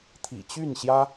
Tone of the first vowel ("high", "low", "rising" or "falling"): low